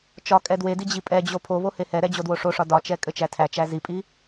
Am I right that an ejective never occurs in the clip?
no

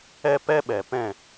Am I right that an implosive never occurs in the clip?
no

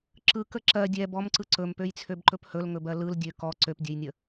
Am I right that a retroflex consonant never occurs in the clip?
yes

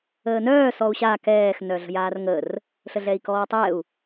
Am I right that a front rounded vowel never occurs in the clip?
no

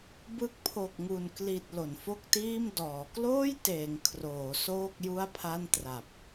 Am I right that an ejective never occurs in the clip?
yes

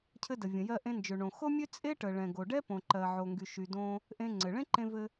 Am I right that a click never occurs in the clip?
no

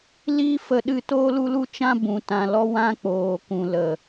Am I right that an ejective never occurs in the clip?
yes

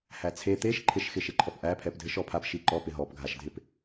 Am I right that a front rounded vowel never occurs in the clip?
yes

